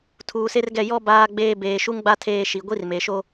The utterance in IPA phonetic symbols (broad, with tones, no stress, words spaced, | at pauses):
tʰuː˨se˦rɡɛ˦˨ jɔ˦ baː˦ɡ͡beː˦ beː˨ʃu˦ŋɡ͡ba˦ tʰeː˦ʃi˨ ɡʷi˦rme˨ʃo˦